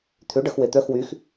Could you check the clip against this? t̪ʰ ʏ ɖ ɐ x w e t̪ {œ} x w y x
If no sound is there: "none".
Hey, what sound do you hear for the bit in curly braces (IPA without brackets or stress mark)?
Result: œ